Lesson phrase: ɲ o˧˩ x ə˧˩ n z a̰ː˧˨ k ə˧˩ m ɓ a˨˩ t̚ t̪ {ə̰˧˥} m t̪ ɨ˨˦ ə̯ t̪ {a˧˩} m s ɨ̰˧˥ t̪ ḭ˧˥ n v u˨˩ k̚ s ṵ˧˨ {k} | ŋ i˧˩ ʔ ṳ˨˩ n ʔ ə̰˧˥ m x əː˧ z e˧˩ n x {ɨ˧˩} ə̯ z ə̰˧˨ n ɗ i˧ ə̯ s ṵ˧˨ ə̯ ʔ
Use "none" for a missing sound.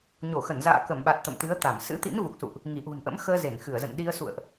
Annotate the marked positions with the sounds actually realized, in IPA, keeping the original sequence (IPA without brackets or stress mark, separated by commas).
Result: ə̰˧˨, a˧˩, ʔ, ɨ˧˩